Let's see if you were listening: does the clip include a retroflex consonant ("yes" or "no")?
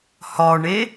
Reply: yes